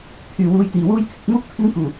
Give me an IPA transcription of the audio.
t̪ʰ yː˨˩ w uː˨˧ j t̪ iː˨˩ w uː˥ j t̪ʰ ɪ˧ k̚ m uː˥ k̚ pʰ ɪ˥ ŋ k uː˨˩

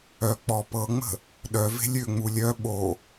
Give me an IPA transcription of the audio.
œ k͡p ɔ p ɤ ŋ͡m ə̤ | ɗ œ v e̤ lʲ ø ŋ͡m u lʲ œ ɓ o

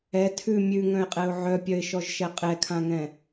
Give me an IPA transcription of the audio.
ɛ tʰ ʉ mʲ ʉ ŋ œ̃ ɪ̯ qʼ ɛ ʊ̯ ʕ œ pʲ œ ɪ̯ ʃ ɔ ʒ ʃ ɛ qʼ ɛ kʰ ã ŋ ɛ̃

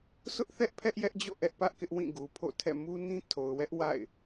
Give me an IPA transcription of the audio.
s ʊ˦ ʔ θ ɛ˦ ʔ pʰ ɛ˦ ʔ j ɛ˦ ʔ d͡ʑ o̰˦˨ ʔ ɛ˦ ʔ p ä˦ ʔ k ɪ˦ ʔ w ĩ˦˨ ɡ u˨ pʰ o̰˦˨ tʰ ɛ̰˦˨ m u˦ n ĩ˦ tʰ o˨ ʊ̯ w ɛ˦ ʔ w a̰˦˨ ɪ̯

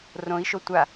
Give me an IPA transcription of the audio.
r õ i̯ ʃ o tʷ a

